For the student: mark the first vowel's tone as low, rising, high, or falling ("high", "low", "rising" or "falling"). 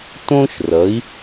high